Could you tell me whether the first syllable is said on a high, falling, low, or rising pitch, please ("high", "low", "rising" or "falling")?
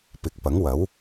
rising